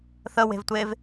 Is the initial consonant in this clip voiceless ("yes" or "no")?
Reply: yes